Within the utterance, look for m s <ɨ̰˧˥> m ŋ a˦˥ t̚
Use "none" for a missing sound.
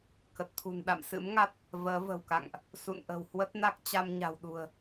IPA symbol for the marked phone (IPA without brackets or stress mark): ɨ̰˧˥